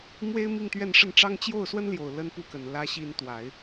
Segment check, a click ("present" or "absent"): absent